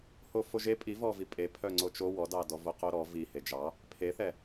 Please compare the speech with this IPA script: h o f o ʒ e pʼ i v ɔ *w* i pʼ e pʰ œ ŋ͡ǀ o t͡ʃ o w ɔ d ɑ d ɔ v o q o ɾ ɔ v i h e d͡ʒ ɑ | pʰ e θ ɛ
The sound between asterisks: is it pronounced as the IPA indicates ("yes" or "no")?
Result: no